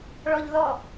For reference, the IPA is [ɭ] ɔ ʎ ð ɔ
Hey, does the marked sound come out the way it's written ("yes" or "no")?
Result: yes